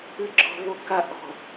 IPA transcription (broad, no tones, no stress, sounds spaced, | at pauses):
ɨ ɡ͡ǁ ɔ̤ β o k a ʔ ɔ̤